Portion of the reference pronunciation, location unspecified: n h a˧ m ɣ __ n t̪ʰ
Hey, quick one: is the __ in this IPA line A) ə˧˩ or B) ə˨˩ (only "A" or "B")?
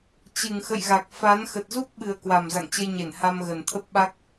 B